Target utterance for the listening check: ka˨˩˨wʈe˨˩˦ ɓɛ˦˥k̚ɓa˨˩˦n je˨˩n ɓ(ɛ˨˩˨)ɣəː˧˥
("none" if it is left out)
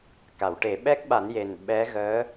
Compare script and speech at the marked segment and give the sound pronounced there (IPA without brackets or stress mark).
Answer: ɛ˧˥